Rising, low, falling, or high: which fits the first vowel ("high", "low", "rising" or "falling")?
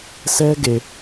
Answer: high